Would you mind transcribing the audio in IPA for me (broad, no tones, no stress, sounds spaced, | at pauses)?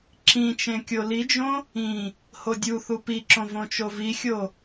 ǁ ĩ t͡ʃ ẽ kʲ o l i d͡ʒ õ | ĩ | h o dʲ u θ u p i ǁ õ v õ t͡ʃ o v i xʲ o